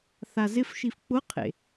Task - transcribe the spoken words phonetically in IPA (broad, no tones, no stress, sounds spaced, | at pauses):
θ a z ɪ f ʃ i f k͡p ʊ qʰ ḛ